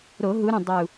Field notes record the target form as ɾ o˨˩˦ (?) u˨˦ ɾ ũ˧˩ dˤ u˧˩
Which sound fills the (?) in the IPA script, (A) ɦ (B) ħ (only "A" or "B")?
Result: A